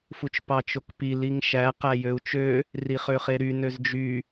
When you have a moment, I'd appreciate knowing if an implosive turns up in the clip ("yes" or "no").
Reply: no